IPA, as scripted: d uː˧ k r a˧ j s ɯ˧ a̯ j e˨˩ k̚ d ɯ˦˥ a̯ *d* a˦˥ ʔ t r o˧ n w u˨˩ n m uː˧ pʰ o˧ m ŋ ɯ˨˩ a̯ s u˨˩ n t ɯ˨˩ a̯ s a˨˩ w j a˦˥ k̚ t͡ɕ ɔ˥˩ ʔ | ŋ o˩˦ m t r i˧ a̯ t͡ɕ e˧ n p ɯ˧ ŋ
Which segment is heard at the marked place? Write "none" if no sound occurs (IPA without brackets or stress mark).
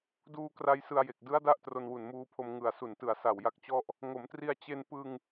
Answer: d